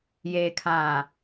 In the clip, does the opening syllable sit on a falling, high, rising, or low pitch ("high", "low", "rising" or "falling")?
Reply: low